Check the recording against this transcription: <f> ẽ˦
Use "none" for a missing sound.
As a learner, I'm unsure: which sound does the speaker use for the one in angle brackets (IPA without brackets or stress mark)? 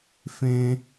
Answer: f